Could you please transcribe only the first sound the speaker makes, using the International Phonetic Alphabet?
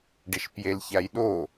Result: ɖ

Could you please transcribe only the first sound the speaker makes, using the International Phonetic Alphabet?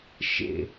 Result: ʃ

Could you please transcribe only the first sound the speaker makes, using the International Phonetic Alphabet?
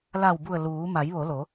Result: l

